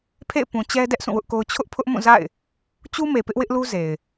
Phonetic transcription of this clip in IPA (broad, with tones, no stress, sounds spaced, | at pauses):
pʰ ḛ˦˨ ɪ̯ p ũ˨ t͡ɕ ɛ˦ d ɛ˦ ʔ s ũ˦˨ w ʊ˦ ʔ k o˦ ʊ̯ t͡ɕʰ ʊ˦ ʔ pʰ ʊ˦ ʔ m ũ˦˨ z a̰˦˨ ɪ̯ | t͡ɕ u˦ m e˨ p ɪ˦ ʔ w ɪ˦ ʔ l u˦ z e˨ ɪ̯